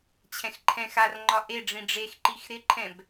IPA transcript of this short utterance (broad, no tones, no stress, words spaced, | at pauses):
t͡ɕʰɛ̃xǃʰɛ̃xarŋ͡ǃɒ ʔe ɖ͡ʐĩɖ͡ʐexǃix ɾɪǃʰɛ̃b